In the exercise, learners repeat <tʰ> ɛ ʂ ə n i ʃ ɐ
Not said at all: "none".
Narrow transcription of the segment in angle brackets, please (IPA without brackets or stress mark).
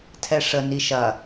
tʰ